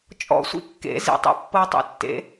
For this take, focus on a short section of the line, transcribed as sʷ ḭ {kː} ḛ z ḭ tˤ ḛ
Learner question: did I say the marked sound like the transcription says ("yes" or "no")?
yes